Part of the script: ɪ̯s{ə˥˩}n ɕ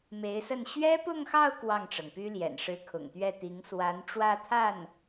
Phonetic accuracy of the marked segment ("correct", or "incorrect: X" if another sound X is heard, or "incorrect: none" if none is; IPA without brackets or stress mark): correct